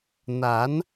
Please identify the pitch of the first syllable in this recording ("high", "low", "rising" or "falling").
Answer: rising